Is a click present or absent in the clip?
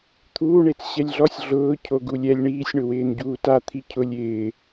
absent